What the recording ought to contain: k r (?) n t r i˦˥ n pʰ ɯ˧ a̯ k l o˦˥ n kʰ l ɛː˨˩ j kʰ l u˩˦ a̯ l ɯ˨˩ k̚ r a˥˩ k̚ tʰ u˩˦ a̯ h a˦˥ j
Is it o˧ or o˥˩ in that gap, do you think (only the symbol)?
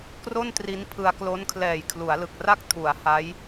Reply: o˥˩